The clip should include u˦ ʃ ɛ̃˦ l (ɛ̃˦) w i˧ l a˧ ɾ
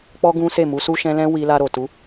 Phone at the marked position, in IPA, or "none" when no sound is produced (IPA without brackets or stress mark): ɛ̃˦